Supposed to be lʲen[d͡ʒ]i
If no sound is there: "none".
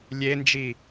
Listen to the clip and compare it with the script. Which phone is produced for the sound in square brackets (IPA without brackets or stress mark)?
d͡ʒ